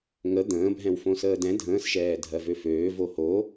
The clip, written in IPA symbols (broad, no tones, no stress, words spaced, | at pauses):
ŋə d̪ə̃ːbʱɛ̃w fõsəːdɛ̃ dʱə̃ːsʃɛː dʱɜvøføː voho